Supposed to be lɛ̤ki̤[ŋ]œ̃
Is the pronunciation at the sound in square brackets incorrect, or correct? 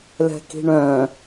incorrect